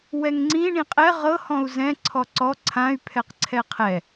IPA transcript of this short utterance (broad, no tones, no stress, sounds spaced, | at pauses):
w ɛ ŋ ŋ͡ǀ ĩ ɳ ĩ qʼ ɛ ʁ ɤ h ɔ̃ u̯ z ɛ̃ ǀʰ ɔ ǀ ɔ ǀʰ ã y̯ pʰ ɛ q ǀʰ ɛ qʰ ɛ